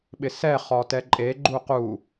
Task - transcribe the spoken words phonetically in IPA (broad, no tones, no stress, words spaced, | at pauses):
ɓɪsɛ χɔtɛǃʼe ɡ͡ǃuqu